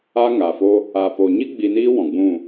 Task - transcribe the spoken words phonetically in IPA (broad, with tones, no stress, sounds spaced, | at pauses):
a˦ ŋ a˨ f o˦ | a˨ p o˨ ɲ i˦ ɡ͡b i˧ n iː˦ w ɔ̃˨ ɡ͡b ũ˦˨